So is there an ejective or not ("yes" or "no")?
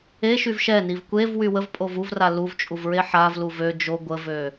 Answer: yes